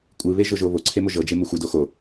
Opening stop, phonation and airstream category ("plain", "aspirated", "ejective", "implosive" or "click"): ejective